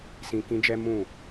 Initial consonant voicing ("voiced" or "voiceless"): voiceless